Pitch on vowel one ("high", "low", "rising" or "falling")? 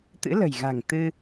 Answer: rising